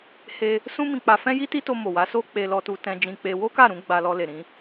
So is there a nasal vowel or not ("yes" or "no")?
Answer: yes